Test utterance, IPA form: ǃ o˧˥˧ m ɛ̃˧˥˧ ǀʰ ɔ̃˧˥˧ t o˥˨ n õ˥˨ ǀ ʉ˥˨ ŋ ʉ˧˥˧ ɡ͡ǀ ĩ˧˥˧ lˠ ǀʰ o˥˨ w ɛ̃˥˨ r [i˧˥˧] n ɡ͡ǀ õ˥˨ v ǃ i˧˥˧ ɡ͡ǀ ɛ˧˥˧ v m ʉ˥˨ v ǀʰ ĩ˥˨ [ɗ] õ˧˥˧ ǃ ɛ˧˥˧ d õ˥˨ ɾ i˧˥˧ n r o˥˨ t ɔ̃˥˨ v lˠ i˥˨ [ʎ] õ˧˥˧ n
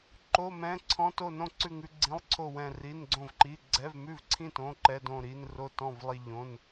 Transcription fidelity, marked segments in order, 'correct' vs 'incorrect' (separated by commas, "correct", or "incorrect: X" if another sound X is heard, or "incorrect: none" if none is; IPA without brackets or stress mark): correct, incorrect: t, correct